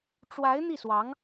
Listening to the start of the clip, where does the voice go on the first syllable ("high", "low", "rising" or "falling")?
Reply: rising